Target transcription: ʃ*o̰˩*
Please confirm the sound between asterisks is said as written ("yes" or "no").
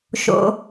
yes